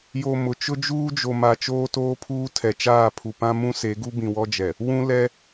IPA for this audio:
j o˨ m ʊ˨ t͡ʃ ʊ˦ d͡ʒ uː˦ d͡ʒ o˨ m a˨ t͡ʃ oː˦ t oː˦ pʰ uː˦ tʰ ɛ˨ t͡ʃ aː˦˨ pʰ u˨ p ã˦ m ũ˦ s e˨˦ ɡ u˦ b ĩ˨ w ɔ˦ d͡ʒ ɛ˨ | w ũ˦ l ɛ˦

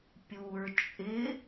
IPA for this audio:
pʲ u ɹ t͡ʃʼ ɪ

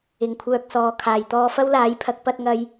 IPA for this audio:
ɪ˨ ŋ kʷʰ œː˧ k̚ s ɔː˨˧ kʰ aː˨ j t̪ ɔː˧ f ɐ˥ w l aː˨˥ j pʰ ɐ˨˥ k̚ p ɐ˧ t̚ ŋ ɐ˧ j

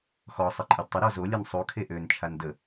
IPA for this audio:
x ɔ sˤ e ǃʼ œ d tˤ ə ɾ ɔ z o lʲ ɛ n sˤ u kʰ e ʔ ø n t͡ʃʰ a n d ə

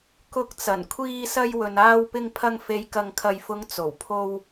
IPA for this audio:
k ʊ˨˥ k̚ t͡s ɐ˨˩ n kʷʰ iː˧ s ɐ˧ j w ɵ˨ n aː˧ w p ɪ˧ ŋ pʰ ɐ˧ ŋ f e˨˧ j k ɐ˨ ŋ kʰ ɐ˨ j f ʊ˨˧ ŋ t͡s o˨˩ w pʰ o˧ w

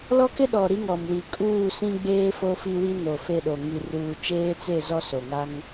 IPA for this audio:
l ɔ˦ k ɪ˦ ɗ ɔ˨ ɾ i˦ ŋ ɔ˨ m w i˨ kʼ uː˦˨ s ĩ˦ ɡ͡b eː˦ f o˦ f i˦ w i˦ n o˨ f e˦˨ ɗ o˨ ŋ i˨ r uː˨ t͡ʃ eː˦ t͡s e˦˨ z ɔ˦ s o˨ ŋ a˦ ŋ

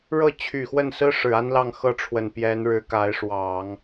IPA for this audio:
ɻ ɤ˥˩ t͡ɕʰ y˨˩ x w ə˥˩ n s ɹ̩˥ ʂ ɻ̩˨˩ a˥ n l ɑ˥˧ ŋ x ɤ˥˩ ʈ͡ʂʰ w ə˨˩ n p j ɛ˧˥ n ɻ ɻ̩˧˥ k a˧˥ ɪ̯ ʂ w ɑ˨˩˦ ŋ

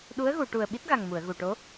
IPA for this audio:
ɗ u˧˥ ə̯ ɣ u˨˩˨ ʈ u˨˩ ə̯ ɓ i˦˥ t̚ ɣ a˨˩ ŋ m u˨˩˨ ə̯ ɣ u˨˩ ʈ o˧˥

